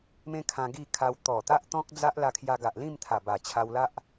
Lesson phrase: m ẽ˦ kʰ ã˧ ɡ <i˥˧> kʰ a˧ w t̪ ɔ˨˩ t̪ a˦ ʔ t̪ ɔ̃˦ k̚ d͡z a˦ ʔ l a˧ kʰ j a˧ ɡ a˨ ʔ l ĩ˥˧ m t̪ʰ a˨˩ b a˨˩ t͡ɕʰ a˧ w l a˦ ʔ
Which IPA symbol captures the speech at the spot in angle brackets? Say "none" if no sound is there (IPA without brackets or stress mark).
i˥˧